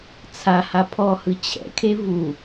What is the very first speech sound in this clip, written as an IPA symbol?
t͡sʰ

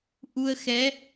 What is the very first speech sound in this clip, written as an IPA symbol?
ʔ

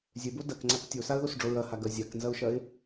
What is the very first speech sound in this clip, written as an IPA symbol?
zʲ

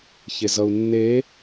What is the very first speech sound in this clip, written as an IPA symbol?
ç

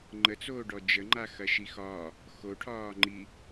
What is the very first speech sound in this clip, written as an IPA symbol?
ŋ͡ǃ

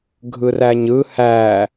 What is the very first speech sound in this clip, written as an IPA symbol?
ɡʱ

